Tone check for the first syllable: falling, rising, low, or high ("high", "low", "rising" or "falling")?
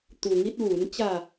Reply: low